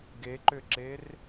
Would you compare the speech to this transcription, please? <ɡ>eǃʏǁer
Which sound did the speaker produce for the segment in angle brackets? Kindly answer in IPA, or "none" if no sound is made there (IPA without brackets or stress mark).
ɡ